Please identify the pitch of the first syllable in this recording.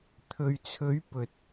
low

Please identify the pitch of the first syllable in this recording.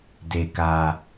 low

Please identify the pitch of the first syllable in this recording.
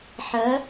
rising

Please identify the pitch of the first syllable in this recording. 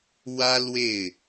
high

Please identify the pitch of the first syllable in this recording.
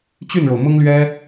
falling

